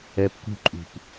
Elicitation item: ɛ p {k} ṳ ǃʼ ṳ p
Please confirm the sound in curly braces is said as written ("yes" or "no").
yes